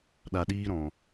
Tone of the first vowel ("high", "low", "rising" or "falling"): low